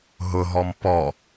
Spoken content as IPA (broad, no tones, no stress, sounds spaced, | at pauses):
ɦ ʊ ɦ ɔ m p ɔ